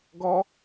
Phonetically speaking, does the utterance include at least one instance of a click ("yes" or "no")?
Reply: no